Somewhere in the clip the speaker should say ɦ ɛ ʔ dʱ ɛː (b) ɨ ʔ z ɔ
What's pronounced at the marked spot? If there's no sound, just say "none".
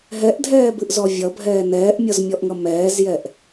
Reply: b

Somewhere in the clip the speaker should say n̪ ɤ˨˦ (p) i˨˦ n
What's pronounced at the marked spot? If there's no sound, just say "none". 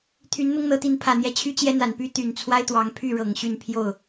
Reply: t̪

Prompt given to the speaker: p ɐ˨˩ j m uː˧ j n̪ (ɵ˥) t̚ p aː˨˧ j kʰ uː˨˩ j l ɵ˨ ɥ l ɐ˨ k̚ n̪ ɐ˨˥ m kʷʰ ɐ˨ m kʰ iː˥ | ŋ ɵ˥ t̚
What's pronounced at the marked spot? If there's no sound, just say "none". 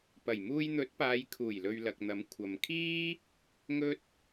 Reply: ɵ˨˥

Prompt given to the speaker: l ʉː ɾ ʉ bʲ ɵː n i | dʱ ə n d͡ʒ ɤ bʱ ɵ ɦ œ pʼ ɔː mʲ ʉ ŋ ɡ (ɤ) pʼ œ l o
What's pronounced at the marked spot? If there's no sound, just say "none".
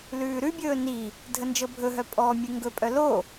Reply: ɵ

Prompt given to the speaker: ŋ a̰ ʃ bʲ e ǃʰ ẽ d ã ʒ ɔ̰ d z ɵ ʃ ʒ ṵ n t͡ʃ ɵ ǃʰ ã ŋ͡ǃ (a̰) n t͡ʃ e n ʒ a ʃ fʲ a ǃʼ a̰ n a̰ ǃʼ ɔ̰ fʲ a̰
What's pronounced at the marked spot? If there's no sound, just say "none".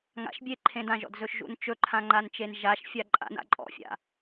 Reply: a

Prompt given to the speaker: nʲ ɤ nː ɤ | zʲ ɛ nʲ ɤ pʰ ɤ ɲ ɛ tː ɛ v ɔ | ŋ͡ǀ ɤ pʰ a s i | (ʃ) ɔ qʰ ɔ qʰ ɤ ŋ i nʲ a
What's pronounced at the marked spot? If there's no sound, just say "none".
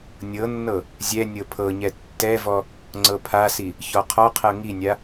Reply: ç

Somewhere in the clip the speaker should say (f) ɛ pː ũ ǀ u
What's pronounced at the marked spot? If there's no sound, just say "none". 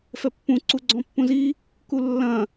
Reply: f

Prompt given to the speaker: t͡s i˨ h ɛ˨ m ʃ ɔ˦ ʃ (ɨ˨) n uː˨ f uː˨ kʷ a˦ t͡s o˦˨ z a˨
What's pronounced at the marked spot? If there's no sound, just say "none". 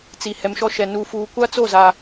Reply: ɛ˨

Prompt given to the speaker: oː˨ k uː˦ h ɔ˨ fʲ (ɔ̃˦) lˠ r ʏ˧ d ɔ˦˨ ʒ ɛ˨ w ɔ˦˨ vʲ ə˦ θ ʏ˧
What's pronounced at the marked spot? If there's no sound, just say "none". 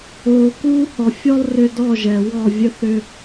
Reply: ɔ˦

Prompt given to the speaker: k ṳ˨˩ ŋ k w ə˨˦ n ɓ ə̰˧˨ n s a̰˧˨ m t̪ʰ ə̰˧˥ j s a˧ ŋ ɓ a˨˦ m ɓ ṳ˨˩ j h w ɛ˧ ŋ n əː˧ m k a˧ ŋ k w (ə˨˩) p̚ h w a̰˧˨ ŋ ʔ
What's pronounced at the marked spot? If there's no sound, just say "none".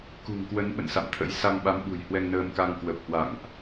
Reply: ə˨˩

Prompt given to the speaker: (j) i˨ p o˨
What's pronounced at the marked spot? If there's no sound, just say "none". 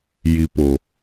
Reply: j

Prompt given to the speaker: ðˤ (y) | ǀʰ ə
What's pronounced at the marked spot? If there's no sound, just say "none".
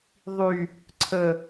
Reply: y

